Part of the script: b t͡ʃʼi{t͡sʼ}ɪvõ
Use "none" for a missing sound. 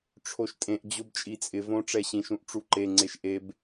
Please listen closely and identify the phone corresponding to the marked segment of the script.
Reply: t͡sʼ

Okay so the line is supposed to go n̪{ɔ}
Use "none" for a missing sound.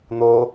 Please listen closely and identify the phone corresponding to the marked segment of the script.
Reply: o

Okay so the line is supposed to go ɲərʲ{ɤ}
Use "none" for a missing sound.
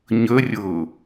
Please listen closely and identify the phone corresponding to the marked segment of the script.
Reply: ɤ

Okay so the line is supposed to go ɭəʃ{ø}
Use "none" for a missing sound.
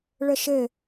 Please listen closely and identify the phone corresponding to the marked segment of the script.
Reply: ɘ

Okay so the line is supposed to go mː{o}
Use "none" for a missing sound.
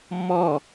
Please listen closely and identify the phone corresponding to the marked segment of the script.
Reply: ɔ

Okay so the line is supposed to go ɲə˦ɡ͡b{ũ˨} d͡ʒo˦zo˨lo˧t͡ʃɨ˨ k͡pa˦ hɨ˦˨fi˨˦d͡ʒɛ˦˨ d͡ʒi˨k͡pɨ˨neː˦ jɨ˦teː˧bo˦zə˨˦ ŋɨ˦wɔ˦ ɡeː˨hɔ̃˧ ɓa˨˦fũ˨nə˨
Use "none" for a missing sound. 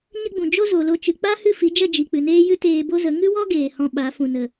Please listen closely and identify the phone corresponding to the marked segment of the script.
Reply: ũ˨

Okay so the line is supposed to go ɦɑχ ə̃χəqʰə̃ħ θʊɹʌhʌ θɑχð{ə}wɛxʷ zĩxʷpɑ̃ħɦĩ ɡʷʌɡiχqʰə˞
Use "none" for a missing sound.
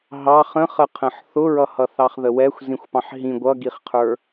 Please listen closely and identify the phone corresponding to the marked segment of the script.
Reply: ə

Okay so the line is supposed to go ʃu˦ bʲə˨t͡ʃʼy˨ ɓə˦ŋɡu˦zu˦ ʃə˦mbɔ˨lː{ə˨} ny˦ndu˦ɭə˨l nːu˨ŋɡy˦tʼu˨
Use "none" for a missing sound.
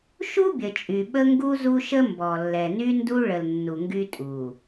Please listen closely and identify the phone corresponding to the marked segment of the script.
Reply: ɛ˨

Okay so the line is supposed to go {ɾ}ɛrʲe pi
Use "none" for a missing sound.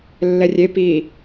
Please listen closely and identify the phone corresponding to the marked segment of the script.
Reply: lː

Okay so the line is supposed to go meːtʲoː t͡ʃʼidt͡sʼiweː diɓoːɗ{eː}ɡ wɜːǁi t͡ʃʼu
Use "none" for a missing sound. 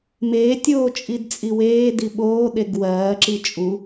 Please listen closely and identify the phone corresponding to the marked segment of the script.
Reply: e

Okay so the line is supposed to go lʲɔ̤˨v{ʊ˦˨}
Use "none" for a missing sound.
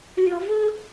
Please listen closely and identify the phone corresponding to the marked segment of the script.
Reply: ʊ˦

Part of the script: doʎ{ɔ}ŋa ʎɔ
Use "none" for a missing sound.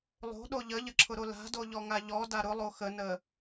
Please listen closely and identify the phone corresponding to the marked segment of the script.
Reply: ɔ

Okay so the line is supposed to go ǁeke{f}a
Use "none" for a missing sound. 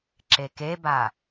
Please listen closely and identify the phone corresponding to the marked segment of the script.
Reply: b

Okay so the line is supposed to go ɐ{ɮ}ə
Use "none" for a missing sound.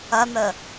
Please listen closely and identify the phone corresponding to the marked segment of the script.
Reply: n̪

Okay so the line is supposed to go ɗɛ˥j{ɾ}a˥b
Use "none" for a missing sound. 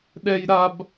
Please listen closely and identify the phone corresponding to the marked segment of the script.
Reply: ɾ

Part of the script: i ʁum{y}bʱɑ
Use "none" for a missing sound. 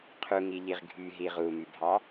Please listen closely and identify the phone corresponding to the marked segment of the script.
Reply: y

